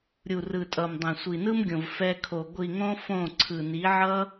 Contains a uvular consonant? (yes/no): no